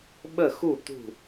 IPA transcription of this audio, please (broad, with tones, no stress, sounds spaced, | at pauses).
ɓ ə˦˨ x u˦˨ t̪ ṳ˦˨